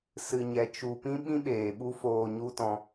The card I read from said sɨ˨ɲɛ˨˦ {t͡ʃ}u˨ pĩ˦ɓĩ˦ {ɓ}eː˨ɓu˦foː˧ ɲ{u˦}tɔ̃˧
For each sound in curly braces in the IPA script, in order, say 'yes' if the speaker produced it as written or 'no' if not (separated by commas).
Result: yes, yes, yes